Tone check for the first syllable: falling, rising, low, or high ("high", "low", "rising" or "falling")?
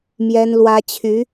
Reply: high